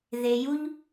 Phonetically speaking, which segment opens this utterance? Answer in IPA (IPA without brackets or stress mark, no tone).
ð